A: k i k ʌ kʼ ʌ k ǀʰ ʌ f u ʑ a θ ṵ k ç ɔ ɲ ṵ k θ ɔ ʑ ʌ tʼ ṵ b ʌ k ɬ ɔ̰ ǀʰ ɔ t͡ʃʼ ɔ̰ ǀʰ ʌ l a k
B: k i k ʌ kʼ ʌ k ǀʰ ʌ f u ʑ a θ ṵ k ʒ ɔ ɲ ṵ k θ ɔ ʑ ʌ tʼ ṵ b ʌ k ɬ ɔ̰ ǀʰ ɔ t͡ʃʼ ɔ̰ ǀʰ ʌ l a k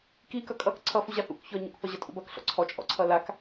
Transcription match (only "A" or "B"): A